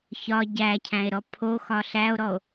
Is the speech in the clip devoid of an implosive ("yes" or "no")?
yes